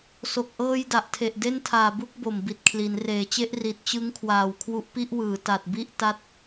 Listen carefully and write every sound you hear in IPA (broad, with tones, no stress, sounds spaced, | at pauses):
s o˨˩ k̚ ʔ ɤː˧ j d a˨˩ ʔ tʰ e˨˩ ʔ d e˥˩ n tʰ aː˨˩ b u˥˩ k̚ b o˨˩ m b i˨˩ t̚ kʰ l i˩˦ n r eː˩˦ t͡ɕ e˦˥ ʔ r i˨˩ t̚ t͡ɕ ɯ˦˥ ŋ kʰ w aː˨˩ w kʰ w u˦˥ ʔ p i˥˩ ʔ w ɯː˩˦ t a˨˩ t̚ b i˥˩ ʔ t a˥˩ t̚